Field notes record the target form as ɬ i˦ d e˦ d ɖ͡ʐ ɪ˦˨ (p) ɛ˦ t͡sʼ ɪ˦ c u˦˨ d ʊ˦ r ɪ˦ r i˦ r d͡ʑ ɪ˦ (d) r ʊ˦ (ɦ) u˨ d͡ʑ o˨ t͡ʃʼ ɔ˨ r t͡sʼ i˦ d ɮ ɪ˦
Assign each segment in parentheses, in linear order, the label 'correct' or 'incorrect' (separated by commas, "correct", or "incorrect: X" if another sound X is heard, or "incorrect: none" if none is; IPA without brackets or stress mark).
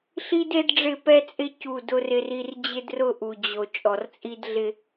correct, correct, incorrect: ʔ